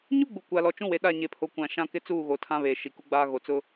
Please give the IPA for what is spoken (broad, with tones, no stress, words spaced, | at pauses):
ɲu˦ɡ͡bu˨ kʷa˨lɔ˨t͡ʃũ˦we˨ ɗa˦˨ɲe˨pʰo˨kʷã˨ ʃã˦kɪ˦t͡suː˦˨ɣo˨ tʰã˦βeː˨ʃi˨ ku˦ɡ͡baː˦ ɣo˨t͡sʊ˦